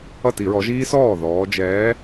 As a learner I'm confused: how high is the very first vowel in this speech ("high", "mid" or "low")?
mid